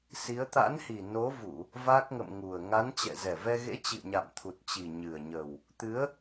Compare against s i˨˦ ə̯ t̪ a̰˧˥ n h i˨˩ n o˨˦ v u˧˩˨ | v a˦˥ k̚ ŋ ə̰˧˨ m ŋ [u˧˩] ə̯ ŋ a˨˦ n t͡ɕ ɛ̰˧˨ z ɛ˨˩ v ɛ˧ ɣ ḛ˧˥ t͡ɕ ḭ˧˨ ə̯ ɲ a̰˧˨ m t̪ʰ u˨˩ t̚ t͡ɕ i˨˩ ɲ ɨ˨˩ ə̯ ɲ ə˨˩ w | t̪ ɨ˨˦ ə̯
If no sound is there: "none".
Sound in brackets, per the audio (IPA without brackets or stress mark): u˨˩